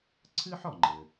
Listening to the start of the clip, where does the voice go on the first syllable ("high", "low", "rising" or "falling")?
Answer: high